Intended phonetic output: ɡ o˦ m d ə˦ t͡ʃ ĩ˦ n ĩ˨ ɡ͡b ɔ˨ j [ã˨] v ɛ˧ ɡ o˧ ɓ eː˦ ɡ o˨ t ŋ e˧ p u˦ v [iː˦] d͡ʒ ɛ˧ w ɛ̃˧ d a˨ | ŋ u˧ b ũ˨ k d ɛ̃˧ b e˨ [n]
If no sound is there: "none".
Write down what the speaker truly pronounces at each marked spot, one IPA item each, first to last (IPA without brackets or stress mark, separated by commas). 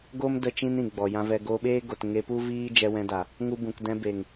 ã˧, iː˦, ŋ